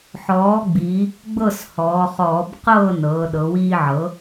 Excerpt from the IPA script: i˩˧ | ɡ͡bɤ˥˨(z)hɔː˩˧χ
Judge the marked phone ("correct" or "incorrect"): incorrect